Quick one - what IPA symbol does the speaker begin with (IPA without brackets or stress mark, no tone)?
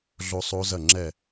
ɮ